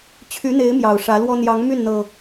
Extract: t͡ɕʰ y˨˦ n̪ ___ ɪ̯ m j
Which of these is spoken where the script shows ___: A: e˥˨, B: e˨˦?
B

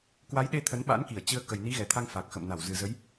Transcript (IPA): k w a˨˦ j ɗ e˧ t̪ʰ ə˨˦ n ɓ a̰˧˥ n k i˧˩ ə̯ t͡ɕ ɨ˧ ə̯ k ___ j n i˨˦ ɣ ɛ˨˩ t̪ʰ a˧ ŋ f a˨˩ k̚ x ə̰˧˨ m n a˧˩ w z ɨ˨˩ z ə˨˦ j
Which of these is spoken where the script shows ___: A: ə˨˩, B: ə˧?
A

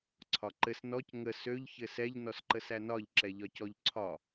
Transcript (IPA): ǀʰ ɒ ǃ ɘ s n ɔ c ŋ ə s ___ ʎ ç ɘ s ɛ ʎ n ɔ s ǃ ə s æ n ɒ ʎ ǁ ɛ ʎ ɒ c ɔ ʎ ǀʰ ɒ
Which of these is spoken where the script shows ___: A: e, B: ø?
B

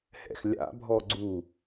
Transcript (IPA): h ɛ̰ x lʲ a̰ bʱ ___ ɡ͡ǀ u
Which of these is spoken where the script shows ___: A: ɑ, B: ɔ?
B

